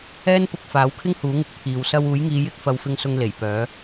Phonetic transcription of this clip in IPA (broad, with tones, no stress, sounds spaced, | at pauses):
ɛː˥ n p ʊ˧ k̚ f aː˨˥ w kʰ ɪ˥ ŋ h uː˨˥ ŋ ɪ˧ k̚ pʰ iː˨ w s ɐ˧ w uː˨˥ j ŋ iː˨˧ j ɪ˥ k̚ f ɐ˧ w f ɪ˧ ŋ s ʊ˧ ŋ l e˨˩ j p œː˨˥